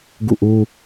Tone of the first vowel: falling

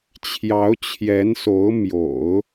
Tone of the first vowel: rising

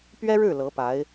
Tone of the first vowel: high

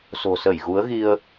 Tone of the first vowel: low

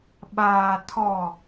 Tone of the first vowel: low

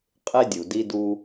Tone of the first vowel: high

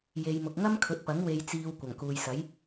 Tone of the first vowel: low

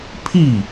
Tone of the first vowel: falling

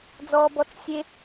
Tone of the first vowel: high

